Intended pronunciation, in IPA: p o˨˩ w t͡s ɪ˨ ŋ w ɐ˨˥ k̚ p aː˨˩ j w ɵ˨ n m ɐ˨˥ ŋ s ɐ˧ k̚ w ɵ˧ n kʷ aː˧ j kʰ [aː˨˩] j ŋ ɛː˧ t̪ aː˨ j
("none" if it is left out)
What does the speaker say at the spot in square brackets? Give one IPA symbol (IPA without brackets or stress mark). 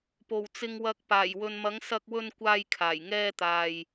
aː˨˩